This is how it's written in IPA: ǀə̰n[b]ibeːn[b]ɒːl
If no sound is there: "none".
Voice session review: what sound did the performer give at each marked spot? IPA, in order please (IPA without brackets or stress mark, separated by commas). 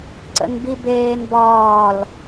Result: b, b